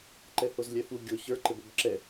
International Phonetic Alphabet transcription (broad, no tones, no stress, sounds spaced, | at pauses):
ǃ ɛ h o z lʲ ɛ f u ɡʲ o ç ə˞ ǃ ɘ b o b ǁ ɛ